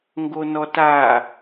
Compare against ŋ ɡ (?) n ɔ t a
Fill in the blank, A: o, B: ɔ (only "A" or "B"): A